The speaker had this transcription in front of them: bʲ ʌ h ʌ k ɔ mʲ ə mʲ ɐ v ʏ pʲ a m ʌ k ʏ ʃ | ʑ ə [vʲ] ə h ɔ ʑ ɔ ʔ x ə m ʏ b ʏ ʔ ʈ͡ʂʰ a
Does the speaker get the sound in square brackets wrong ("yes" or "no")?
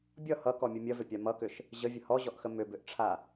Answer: no